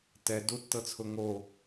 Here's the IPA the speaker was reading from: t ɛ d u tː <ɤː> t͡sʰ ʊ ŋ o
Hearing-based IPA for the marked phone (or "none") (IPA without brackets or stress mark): ɤ